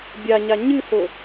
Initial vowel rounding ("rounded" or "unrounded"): unrounded